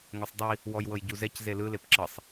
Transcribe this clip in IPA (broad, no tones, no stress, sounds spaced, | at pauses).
ŋ o sˤ dˤ i | w ɔ j w ɤ j ɟ u z ɛ c z e l ɯ l e p ǁ ɤ sˤ